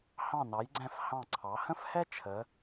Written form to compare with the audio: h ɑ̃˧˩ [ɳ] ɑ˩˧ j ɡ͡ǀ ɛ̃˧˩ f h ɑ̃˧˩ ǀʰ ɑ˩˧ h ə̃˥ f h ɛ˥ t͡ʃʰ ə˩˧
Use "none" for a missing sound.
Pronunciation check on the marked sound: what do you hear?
n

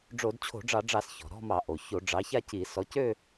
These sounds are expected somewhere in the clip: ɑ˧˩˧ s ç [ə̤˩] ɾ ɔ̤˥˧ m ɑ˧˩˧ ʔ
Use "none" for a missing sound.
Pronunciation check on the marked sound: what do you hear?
ɔ̤˩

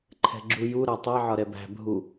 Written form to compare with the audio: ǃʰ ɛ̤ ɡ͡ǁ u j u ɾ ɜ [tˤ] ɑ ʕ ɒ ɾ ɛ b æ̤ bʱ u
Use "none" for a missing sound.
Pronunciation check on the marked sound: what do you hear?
tˤ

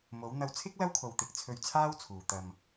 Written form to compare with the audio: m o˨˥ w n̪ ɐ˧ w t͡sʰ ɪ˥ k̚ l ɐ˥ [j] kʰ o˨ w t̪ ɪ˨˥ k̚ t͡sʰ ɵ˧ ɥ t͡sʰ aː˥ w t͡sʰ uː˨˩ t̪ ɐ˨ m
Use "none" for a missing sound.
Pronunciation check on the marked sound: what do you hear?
w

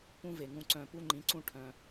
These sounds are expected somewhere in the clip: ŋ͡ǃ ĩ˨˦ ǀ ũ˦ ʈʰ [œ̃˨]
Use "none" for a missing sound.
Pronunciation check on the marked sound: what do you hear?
œ̃˦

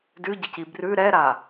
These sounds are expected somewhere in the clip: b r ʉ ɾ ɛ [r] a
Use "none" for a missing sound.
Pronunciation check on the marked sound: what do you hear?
ɾ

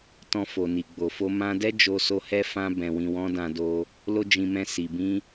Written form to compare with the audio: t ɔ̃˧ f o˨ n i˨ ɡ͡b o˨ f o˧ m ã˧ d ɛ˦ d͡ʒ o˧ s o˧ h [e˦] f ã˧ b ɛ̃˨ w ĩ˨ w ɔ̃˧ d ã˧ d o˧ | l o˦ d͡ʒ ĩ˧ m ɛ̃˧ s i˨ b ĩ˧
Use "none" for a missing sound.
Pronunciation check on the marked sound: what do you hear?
ɛ˦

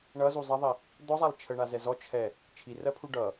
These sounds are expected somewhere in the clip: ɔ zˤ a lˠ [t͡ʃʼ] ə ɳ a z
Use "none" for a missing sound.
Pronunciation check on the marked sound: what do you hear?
t͡ʃʰ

